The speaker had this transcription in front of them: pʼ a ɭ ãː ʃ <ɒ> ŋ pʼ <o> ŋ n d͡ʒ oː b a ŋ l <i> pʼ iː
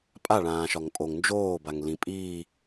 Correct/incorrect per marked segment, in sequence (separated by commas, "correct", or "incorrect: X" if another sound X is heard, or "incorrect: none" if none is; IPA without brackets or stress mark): correct, correct, incorrect: ĩ